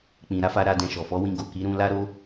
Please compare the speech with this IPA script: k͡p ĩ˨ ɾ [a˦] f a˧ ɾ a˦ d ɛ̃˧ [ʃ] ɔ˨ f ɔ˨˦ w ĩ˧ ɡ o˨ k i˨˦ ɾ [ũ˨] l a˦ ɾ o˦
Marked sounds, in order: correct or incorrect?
incorrect: a˨˦, correct, incorrect: ũ˧

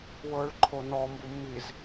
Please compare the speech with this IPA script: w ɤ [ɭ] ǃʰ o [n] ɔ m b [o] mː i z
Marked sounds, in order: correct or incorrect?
correct, correct, incorrect: u

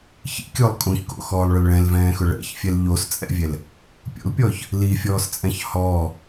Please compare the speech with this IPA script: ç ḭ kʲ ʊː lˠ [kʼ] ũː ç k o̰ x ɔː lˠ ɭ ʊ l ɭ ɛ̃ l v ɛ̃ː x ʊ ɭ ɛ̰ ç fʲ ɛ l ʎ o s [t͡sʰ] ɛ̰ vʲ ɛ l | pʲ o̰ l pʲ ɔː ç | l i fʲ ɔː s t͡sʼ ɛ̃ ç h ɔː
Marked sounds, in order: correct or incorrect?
correct, incorrect: t͡sʼ

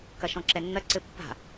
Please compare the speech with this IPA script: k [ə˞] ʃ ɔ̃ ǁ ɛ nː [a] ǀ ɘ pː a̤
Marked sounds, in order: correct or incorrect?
incorrect: ɐ, incorrect: ɐ

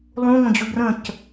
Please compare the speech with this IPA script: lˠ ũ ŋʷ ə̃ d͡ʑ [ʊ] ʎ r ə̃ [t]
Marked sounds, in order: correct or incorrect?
correct, incorrect: c

